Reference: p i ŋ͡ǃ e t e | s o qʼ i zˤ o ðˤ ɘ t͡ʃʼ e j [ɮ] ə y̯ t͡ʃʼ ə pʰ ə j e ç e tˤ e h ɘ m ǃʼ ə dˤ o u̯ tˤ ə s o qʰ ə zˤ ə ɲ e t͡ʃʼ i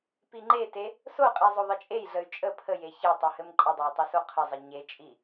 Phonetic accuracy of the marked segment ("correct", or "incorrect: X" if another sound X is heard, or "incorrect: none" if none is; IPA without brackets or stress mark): correct